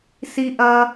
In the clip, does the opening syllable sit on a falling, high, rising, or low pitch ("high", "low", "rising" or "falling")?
high